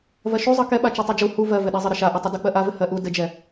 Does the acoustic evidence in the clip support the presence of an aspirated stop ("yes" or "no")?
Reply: no